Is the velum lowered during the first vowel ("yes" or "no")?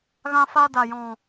yes